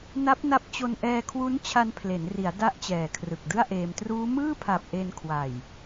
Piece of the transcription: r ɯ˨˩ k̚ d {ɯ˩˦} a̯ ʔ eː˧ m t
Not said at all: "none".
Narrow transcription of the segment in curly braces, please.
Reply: ɯ˥˩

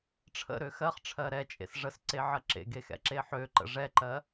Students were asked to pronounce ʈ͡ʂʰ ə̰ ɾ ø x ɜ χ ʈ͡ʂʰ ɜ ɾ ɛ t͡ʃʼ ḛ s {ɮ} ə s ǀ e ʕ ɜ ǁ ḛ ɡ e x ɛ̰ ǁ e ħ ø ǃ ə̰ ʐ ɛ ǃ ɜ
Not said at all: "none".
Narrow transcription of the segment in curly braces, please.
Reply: ʐ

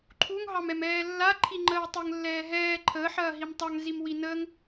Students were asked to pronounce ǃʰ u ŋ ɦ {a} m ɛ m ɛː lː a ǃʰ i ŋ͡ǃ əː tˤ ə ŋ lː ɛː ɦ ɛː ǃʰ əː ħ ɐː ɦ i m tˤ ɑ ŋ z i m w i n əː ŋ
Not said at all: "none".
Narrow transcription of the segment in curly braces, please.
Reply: ɑ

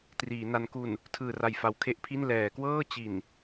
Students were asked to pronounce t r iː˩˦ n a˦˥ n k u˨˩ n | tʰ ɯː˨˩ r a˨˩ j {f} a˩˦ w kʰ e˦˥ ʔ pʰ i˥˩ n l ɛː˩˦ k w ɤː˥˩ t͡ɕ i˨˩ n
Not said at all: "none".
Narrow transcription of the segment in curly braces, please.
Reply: f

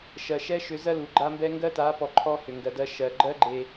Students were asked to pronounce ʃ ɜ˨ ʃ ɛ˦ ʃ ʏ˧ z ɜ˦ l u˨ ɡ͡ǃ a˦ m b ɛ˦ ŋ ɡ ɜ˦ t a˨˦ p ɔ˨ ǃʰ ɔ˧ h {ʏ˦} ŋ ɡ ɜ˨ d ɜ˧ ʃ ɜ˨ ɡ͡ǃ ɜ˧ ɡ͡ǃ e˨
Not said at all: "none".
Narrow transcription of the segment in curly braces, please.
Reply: ʏ˨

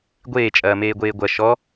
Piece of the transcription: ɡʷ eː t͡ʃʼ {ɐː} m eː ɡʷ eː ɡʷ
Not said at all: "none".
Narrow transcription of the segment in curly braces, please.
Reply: ɐː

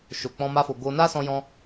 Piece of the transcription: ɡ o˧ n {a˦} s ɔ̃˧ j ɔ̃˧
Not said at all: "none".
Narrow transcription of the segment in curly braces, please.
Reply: a˦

